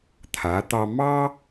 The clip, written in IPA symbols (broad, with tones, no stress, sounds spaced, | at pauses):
t̪ʰ a˩˧ t̪ ɑ˧ m ɑ˥